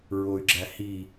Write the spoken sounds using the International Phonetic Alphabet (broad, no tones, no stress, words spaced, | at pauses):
ɹoy̯ɡ͡ǁæhi